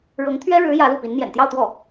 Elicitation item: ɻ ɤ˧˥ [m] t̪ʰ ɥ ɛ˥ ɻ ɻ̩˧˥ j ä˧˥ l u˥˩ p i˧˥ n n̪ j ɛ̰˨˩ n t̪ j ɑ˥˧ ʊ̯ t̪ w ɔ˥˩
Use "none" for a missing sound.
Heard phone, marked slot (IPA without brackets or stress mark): ŋ